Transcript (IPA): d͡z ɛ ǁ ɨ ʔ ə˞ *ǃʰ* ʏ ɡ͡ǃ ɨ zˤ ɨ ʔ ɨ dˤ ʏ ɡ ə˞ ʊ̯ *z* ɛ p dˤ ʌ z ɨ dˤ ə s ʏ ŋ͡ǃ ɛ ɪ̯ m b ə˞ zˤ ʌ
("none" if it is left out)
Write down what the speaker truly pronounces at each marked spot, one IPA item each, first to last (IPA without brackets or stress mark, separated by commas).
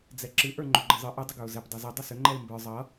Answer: ŋ͡ǃ, z